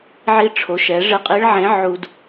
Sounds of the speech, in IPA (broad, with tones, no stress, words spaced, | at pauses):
ʕi˧ʈ͡ʂʰo˩˧ʃɛ˩˧ ʐɪ˧˥qʼi˧˥ɭʕẽ˧˥ ʕu˧d